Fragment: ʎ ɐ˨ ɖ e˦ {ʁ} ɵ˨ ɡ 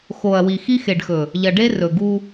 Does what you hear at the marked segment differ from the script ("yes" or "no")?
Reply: yes